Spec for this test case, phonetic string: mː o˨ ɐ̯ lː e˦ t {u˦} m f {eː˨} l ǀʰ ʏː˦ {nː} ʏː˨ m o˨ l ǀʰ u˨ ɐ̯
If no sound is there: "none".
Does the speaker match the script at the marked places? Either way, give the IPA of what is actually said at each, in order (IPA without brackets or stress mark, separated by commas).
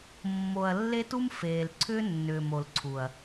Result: u˦, eː˨, nː